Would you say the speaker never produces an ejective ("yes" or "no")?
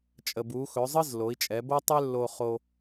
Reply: no